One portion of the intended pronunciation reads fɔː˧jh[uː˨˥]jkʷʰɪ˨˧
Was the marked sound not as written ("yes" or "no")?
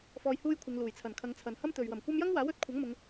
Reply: yes